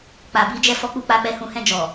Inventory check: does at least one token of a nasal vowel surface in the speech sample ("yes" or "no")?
yes